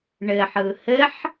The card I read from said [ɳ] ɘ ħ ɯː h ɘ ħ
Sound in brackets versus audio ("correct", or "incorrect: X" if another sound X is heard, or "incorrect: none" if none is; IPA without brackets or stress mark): correct